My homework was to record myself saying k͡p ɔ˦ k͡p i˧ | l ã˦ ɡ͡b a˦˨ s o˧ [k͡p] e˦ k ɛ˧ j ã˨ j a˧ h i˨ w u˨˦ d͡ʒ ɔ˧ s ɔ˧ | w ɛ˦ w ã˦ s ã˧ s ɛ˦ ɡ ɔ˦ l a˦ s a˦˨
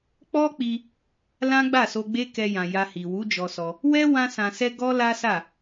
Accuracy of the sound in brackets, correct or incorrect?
incorrect